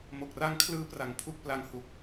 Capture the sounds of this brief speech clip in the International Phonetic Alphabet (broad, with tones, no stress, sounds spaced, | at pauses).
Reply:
m o˨˩ k̚ r a˦˥ ŋ kʰ l ɯː˦˥ p r a˨˩ ŋ pʰ u˦˥ k̚ p l a˧ ŋ h u˨˩ k̚